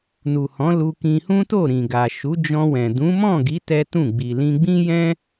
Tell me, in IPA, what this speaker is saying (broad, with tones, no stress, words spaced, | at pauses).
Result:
nu˨hɔ̃˨˦ lu˧kĩ˧hũ˦to˦˨ ɾĩ˨ɡa˨ ʃu˨˦d͡ʒɔ̃˧wɛ̃˨ dũ˨˦mɔ̃˦˨ɡi˨˦ tɛ˦tũ˦˨ ɡ͡bi˨lĩ˧ɡ͡bĩ˦jɛ̃˦